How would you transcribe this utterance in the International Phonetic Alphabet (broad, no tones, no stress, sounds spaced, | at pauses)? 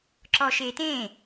ǁ ɔ ʃ e t ẽ